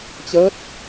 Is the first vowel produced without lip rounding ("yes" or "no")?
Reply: yes